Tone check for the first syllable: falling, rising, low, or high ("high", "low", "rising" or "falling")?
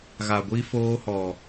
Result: low